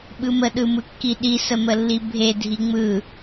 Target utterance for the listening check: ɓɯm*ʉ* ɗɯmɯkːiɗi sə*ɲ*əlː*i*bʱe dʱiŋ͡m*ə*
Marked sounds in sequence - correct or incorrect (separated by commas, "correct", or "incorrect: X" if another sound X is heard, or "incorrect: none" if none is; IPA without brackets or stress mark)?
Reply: incorrect: ə, incorrect: m, correct, incorrect: ɯ